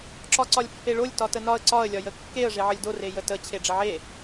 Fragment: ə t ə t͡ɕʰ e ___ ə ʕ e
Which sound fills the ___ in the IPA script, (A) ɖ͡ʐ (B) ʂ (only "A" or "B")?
A